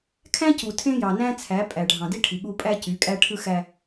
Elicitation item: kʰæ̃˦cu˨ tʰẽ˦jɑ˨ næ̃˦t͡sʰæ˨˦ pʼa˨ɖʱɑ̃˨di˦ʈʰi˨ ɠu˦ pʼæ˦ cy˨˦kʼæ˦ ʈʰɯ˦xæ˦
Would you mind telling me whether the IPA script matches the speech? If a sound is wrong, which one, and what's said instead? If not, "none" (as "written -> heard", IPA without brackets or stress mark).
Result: a˨ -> æ˨